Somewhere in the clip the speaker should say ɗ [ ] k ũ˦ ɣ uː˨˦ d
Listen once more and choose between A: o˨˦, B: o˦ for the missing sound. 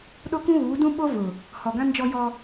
B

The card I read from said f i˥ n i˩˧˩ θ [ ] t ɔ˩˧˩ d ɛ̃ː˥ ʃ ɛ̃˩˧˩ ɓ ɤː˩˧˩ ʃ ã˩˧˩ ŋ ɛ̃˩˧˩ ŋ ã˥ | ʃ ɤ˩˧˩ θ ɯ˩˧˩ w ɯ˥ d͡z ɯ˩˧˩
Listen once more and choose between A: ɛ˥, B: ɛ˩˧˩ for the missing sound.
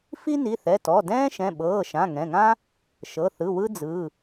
B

